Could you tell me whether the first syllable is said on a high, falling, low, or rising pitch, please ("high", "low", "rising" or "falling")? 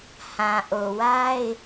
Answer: low